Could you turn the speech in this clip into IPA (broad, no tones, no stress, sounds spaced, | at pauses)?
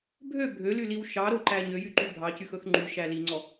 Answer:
bʱ ø bʱ ø l y l i w ʃ ɑ ɾ o ǃ æ ɲ ø j y ǃ y bʱ ɑ c y x ɵ x ŋ͡ǃ y ʃ æ l i ŋ͡ǀ ɔ